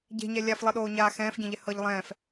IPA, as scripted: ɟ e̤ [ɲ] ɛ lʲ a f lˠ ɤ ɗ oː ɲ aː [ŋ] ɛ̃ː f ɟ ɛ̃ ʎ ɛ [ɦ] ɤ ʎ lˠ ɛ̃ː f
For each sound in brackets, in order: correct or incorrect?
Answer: correct, incorrect: x, incorrect: h

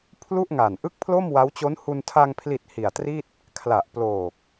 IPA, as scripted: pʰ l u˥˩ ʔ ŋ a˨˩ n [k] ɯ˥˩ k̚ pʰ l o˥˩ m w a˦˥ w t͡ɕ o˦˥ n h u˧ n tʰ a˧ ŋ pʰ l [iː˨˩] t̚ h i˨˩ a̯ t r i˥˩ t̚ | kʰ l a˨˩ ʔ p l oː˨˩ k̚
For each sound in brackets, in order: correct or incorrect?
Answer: incorrect: ʔ, incorrect: i˨˩

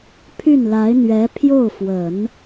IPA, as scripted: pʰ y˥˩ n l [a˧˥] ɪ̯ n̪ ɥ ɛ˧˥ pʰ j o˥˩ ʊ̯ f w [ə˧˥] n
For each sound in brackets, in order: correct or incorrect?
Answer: correct, incorrect: ə˨˩˦

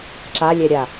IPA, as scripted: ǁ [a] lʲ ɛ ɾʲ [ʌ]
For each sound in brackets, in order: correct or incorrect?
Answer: correct, incorrect: a

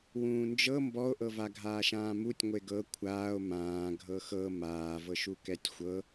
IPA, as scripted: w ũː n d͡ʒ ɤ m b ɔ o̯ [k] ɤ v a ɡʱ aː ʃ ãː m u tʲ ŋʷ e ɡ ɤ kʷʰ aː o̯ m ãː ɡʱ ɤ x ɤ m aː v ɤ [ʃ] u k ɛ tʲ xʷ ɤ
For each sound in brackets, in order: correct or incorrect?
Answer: incorrect: ʔ, correct

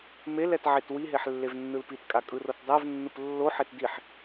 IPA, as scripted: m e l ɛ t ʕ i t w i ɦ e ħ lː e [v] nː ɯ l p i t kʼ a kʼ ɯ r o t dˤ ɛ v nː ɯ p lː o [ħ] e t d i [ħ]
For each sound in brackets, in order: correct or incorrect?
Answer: correct, correct, correct

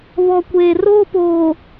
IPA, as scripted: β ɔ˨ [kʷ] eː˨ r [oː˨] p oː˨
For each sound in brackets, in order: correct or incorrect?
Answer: correct, incorrect: oː˦

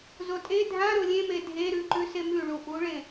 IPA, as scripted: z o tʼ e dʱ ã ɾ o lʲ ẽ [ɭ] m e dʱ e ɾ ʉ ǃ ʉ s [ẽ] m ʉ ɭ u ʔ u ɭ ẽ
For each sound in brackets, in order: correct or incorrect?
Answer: incorrect: none, incorrect: e

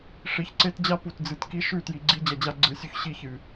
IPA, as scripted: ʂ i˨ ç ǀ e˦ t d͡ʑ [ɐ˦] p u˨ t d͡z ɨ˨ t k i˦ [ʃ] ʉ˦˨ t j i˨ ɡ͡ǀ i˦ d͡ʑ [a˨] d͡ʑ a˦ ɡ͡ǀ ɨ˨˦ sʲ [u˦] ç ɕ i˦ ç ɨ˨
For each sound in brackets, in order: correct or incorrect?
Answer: incorrect: a˦, correct, incorrect: ɐ˨, correct

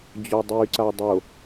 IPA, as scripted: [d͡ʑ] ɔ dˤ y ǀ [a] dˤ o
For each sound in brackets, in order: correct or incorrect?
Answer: correct, correct

